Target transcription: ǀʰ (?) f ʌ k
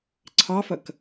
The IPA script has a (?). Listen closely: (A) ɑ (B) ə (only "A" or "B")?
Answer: A